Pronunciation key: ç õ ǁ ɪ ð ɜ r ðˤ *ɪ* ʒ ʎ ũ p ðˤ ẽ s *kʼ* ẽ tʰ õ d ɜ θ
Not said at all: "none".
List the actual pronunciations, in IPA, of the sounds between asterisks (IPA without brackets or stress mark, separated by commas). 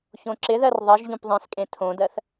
ɪ, kʼ